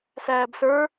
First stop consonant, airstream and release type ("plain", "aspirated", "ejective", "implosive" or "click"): plain